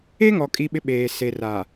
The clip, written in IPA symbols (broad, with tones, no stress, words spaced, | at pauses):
e˦ŋɔ˨ kʼi˦ɓɪ˦ɓeː˨ se˨ra˨